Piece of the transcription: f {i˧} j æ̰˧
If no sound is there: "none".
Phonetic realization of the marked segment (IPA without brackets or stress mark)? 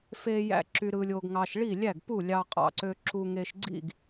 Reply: e˧